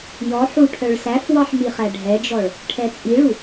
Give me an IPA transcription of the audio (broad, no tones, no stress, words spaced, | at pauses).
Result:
jɔ ħuʈʰœɭ sæfwɑħ miχæɖʱɛd͡ʒɔɭ | ʈʰɛt͡sʼiɭu